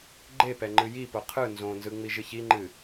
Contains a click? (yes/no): yes